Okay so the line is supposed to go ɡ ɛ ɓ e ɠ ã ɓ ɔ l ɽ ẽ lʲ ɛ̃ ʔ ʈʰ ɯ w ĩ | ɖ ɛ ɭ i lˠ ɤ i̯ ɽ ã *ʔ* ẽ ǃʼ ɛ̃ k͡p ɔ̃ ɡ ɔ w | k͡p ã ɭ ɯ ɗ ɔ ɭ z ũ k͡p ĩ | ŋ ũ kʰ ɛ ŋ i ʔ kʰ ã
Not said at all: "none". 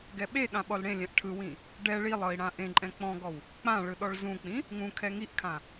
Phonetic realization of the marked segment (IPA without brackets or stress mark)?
ʔ